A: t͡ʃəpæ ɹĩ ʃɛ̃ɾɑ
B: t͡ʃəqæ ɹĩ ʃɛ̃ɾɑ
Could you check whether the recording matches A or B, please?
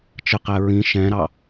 B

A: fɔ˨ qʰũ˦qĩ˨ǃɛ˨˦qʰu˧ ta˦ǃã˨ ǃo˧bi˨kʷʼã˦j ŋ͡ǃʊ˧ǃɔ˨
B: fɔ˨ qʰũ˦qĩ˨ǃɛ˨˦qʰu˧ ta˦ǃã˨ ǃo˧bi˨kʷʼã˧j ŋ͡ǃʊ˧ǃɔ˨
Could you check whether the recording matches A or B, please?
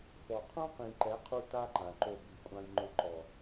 B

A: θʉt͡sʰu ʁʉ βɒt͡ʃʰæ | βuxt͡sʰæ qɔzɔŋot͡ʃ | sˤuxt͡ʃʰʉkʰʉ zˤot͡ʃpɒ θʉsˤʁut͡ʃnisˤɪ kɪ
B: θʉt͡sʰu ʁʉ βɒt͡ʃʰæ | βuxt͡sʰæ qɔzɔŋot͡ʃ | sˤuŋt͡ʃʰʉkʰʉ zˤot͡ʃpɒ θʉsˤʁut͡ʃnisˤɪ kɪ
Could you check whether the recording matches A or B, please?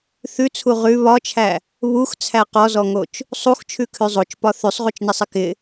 A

